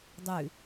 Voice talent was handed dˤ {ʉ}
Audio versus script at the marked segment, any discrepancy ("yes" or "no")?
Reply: no